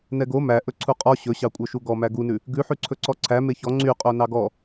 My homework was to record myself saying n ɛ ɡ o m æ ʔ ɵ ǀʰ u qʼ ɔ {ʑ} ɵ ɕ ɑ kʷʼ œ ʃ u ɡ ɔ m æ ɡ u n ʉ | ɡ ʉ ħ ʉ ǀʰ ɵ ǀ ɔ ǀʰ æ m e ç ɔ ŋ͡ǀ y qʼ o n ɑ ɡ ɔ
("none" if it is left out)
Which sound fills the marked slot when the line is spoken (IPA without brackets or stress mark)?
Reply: ɕ